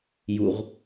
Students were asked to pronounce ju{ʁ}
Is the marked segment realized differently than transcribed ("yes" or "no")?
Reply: no